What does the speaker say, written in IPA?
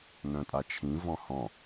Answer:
n œ̃ tʼ a t͡ʃʰ ĩ v ɔ̃ h ɔ̃

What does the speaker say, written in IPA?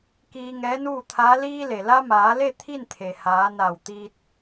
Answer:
k iː˧ ŋ ɛː˧˥ n uː˥˨ t̪ʰ aː˧˥ l iː˧ l e˩ l a˧ m aː˩˧ l e˥˨ t̪ʰ i˥˨ n t̪ʰ e˩ h aː˩˧ n a˧˩ w t̪ i˧ t̚

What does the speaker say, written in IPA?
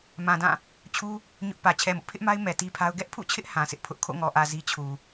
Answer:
m ã˨ d ã˦˨ | t͡ɕʰ u˦ | ɲ ʊ˦ ʔ p ä˨ t͡ɕʰ ɛ˨ m ʊ˦ ʔ pʰ ɪ˦ ʔ m a˦ ɪ̯ m ɛ˨ t i˦ pʰ a˦ ʊ̯ ɡ ɛ˦ ʔ pʰ ṵ˦˨ t͡ɕʰ ɪ˦ ʔ h ã˨ s ɪ˦ ʔ pʰ ʊ˦ ʔ kʰ o̰˦˨ ŋ ɔ˨ ʔ ä˨ z i˦ t͡ɕʰ u˨

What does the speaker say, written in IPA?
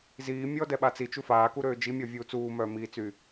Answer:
z iː mʲ ɔ d ɛ ɓ a t͡s i t͡ʃ u f aː k u ɾ øː d͡ʒ i mʲ ɔ vʲ uː t͡s uː m œː m iː t͡s y

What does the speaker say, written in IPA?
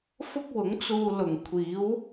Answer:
f ʊ˥ k̚ w ʊ˨˥ ŋ t͡s uː˧ l ʊ˨˩ ŋ kʷʰ iː˨˥ w

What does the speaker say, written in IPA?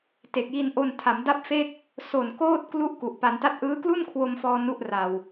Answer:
t e˨˩ k̚ j i˧ n ʔ o˧ n tʰ a˩˦ m d a˥˩ p̚ f e˥˩ k̚ | s o˨˩ n k oː˥˩ t̚ k l u˥˩ ʔ k u˨˩ ʔ p a˧ n t a˥˩ t̚ ʔ ɯː˦˥ k l u˥˩ n kʰ w o˧ m f ɔː˧ n u˥˩ ʔ r a˧ w

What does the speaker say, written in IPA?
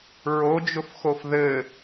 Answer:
ɹ o d͡ʒ ʊ f x o f ð ɘ

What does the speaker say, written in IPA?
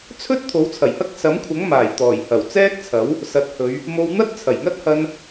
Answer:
t͡sʰ ɵ˥ t̚ t̪ʰ o˨˥ w t͡sʰ ɐ˨˩ j h ɐ˥ k̚ s ɐ˨˥ m kʷʰ ɐ˨˥ ŋ m aː˨˩ j t̪ ɔː˨˩ j h ɐ˨˩ w t͡s ɛː˥ k̚ t͡sʰ ɐ˨˥ w | s ɐ˨˥ t̚ h ɵ˨˧ ɥ | m o˧ w n̪ ɐ˥ t̚ t͡sʰ ɐ˨˩ j ŋ ɐ˥ t̚ h ɐ˧ n

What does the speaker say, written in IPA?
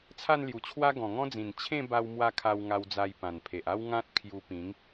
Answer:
t͡sʰ a˥˧ n l j u˨˩ t͡ɕʰ w a˦ ɡ ɔ̃˨˩ ŋ ɔ̃˦ d͡z ĩ˨˩ n t͡ɕʰ ẽ˥˧ b a˧ w m w a˧ kʰ a˧ w ŋ a˧ w d͡z a˧ j p ã˨˩ n pʰ e˨ ʔ a˦ w ŋ ã˦ t̚ kʰ j u˧ p ĩ˨˦ ŋ

